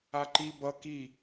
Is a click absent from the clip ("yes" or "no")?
no